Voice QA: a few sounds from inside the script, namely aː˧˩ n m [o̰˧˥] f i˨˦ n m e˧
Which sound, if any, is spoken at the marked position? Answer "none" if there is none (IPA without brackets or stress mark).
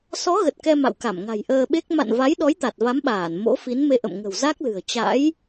o̰˧˥